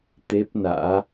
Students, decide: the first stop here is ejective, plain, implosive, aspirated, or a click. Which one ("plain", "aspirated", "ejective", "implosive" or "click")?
plain